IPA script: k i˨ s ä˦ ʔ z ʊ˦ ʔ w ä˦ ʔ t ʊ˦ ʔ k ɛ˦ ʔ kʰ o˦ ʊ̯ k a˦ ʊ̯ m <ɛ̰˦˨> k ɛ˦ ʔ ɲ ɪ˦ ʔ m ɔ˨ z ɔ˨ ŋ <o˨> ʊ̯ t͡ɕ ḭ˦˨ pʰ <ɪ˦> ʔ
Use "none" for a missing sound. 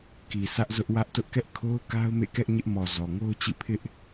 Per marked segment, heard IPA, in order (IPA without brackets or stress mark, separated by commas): ḛ˦˨, o˦, ɪ˦